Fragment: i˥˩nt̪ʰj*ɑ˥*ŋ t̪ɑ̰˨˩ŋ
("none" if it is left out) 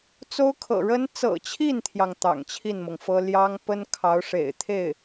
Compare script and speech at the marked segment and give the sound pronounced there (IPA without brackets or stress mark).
ɑ˩